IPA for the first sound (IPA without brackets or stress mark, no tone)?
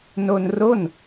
n